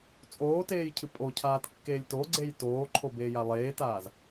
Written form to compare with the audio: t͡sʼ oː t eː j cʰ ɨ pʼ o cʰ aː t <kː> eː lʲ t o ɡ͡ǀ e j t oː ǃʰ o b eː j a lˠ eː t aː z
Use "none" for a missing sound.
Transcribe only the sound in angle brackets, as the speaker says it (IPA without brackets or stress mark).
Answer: kː